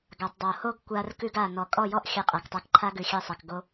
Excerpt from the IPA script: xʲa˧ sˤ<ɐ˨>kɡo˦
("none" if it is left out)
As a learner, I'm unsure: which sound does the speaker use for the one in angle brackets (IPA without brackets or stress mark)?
a˨